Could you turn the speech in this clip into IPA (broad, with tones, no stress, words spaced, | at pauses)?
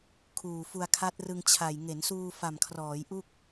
kʰuː˨˩ fu˧a̯kʰa˦˥t̚rɯ˧ŋt͡ɕʰa˨˩j ŋe˩˦nsuː˧ fa˨˩mkʰrɔː˩˦jʔu˥˩k̚